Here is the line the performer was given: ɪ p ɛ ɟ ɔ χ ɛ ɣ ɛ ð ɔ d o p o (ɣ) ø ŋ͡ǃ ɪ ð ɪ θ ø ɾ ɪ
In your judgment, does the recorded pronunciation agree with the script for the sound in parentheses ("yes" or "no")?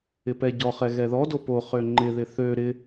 no